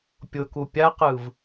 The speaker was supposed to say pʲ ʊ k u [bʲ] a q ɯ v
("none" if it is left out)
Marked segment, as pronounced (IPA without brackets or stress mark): pʲ